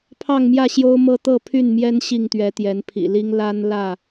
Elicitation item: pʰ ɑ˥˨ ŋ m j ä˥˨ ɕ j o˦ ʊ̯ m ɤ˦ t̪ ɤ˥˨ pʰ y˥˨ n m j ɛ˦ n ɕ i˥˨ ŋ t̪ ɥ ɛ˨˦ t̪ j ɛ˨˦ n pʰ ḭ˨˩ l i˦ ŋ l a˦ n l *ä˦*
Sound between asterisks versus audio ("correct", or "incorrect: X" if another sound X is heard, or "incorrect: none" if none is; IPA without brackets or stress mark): incorrect: ä˥˨